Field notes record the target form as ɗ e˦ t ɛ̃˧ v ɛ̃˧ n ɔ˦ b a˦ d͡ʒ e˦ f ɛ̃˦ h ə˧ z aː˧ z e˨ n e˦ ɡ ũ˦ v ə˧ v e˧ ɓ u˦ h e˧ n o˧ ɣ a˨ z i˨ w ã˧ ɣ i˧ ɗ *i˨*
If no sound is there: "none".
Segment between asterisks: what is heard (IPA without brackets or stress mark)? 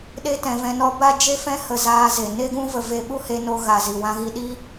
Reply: i˦